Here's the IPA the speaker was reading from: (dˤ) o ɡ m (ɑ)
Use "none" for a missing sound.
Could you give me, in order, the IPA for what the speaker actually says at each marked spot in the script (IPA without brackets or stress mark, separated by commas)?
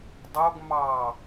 dˤ, ɑ